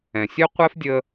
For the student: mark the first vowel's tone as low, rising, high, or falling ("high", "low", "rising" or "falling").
low